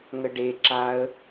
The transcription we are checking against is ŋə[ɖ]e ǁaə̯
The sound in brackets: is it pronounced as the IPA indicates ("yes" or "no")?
yes